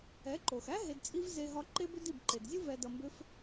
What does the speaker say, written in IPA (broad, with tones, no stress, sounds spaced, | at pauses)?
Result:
ɛ˨˦ ǃ o˨ x æ˦ ɦ e˧ d t͡sʼ i˦ v z e˧ ɦ ɒ˧ ǃ e˦ b ʏ˦ d i˦˨ b ǃ e˨ d zʲ u˦ v ɛ˧ d ʌ˧ m b ʏ˦ f